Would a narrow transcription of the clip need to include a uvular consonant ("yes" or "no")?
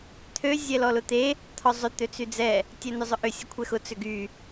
no